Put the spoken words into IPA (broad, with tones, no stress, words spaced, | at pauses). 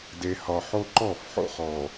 de˨ hɒ˨ħo˦ ǃɔ˦˨fħo̰˦χɔ˨